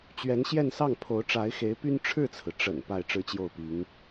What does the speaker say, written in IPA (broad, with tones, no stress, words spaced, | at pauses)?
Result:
t͡ɕɥɛ˧˥nɕjɛ˥˧nsɑ˥˩ŋ pʰo˧˥ʊ̯ʈ͡ʂa˧˥ɪ̯xe˧˥ɪ̯py˥n ʈ͡ʂʰɻ̩˥˩t͡sʰɹ̩˩ ʈ͡ʂə̰˨˩n pa˥˩ɪ̯ʈ͡ʂɻ̩˥t͡ɕjo˥˩ʊ̯pi˧˥ŋ